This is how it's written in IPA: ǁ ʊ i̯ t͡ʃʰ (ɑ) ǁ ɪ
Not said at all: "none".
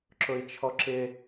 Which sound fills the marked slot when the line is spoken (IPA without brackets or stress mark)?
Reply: ɔ